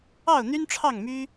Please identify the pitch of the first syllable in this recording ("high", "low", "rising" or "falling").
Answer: falling